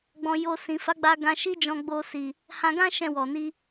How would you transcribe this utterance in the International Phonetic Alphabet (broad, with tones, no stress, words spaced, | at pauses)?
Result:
ɡ͡bɔ̃˧jo˧ sĩ˨fa˨˦ɡ͡ba˧ ɡã˧ʃi˦ d͡ʒɔ̃˧ɡ͡bo˧si˨ | hã˧ɡã˦ ʃɛ̃˦˨wɔ˨ni˧